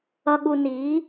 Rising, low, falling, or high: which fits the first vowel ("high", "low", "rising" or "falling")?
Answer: low